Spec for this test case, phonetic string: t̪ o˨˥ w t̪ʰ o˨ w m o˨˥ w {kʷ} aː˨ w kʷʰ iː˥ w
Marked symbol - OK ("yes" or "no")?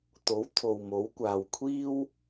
yes